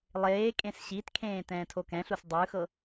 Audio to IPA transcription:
lˠ eː kʼ ẽ s ɕ i t kʰ ẽː t ɛ̃ː tʰ o k ɛ̃ ɬ u s dˤ ɯ x ɤ

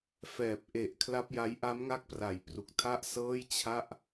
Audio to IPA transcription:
f ɛː˨˩ p̚ ʔ e˨˩ ʔ kʰ l a˦˥ p̚ j a˦˥ j ʔ a˦˥ m ŋ a˦˥ k̚ p r a˩˦ j p r u˨˩ k̚ tʰ a˥˩ ʔ s ɤː˥˩ j t͡ɕʰ a˥˩ ʔ

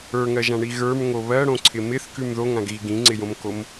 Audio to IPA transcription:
ə˞ ŋ ɜ ʒ ã ɳ i ɣ ə˞ m ŋ o β ɜ ɽ õ ǀʰ ɪ m ɪ θ k ʉ m ð o ŋ ã ɡ ɣ i ɡ ĩ ŋ͡ǀ ɪ j õ m k o m

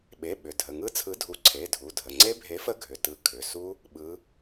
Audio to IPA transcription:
ɓ e˩˧˩ ɓ ʏ˩˧˩ dʱ ə˩˧˩ ŋ ɯ˦˥ t͡sʰ ɯ˨˥ dʱ u˨˥ ǀʰ e˩˧˩ dʱ u˩˧˩ dʱ ə˩˧˩ ŋ͡ǀ e˦˥ bʱ e˨˥ f ə˦˥ ɡʱ ʏ˩˧˩ t ɯ˨˥ kʰ ʏ˩˧˩ s u˦˥ | ɓ ɯ˨˥

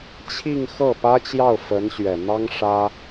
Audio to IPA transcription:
t͡ɕʰ i˥˧ ŋ x ɤ˥˩ p ä˥ t͡ɕ j ɑ˥˩ ʊ̯ f ə˧˥ n ɕ ɥ ɛ˨˩ n̪ ɑ˥ ŋ ʂ ä˥

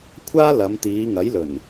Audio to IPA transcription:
kʷʰ aː˥ l ɐ˨˧ m t̪ iː˨˧ ŋ ɐ˨˥ j l ɵ˨˩ n

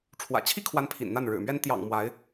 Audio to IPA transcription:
ʈ͡ʂʰ w ä̰˨˩ t͡ɕʰ i˥ kʰ w a˧˥ n pʰ ḭ˨˩ n n̪ a˥˩ n ɻ ɻ̩˨˩ m ɥ ɛ˥ n t̪ j ɑ̰˨˩ ŋ m w a˧˥ ɪ̯

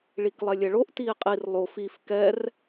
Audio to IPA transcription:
ɭ i k lˠ ɛ lʲ ɛ ɭ o ʔ t iː qʼ i r lˠ o f i f k ɛ r

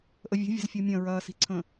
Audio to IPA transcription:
ʔ ə vʲ ə̤ vʲ ə̤ z fʲ o mʲ ɐ̃ ɹ ɐː s i̤ ǀʰ ə̃

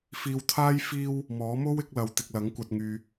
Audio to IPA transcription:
f iː˧ w t̪ʰ aː˥ j f iː˧ w | m ɔː˨˥ m o˥ w ɪ˨˥ k̚ l ɐ˨ w t̪ ɪ˨ k̚ l ɐ˨˥ ŋ kʷ ɐ˨ t̚ ŋ yː˨

